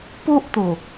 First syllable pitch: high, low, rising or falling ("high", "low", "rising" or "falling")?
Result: high